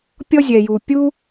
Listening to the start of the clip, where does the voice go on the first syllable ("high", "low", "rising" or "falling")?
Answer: high